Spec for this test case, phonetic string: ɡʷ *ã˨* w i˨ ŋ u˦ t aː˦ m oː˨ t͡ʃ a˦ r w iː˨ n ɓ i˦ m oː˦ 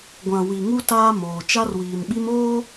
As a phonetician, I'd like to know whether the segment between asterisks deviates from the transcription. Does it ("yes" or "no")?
no